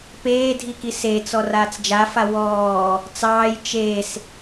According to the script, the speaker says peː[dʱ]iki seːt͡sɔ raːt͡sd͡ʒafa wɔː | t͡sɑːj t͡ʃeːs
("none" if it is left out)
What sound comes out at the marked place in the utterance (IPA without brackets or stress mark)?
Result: dʱ